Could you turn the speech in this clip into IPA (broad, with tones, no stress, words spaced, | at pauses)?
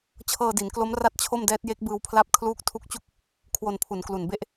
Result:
t͡ɕʰɤː˧di˩˦nklo˦˥m ra˥˩t̚t͡ɕʰo˥˩mdɛː˦˥t̚je˦˥k̚ bɯː˧wpʰla˦˥p̚ kʰluː˦˥k̚tʰu˦˥k̚t͡ɕu˥˩k̚ | kʰwo˧npʰu˩˦nklu˨˩nbe˥˩ʔ